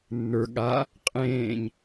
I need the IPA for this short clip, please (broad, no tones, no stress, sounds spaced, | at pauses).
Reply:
nː ə˞ ɠ a | qʼ ẽː ɲ